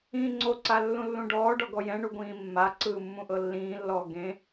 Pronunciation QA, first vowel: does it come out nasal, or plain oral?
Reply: nasal